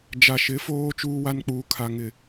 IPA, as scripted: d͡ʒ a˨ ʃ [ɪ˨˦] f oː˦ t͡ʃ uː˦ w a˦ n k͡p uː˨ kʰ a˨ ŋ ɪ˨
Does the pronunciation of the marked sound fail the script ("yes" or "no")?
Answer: no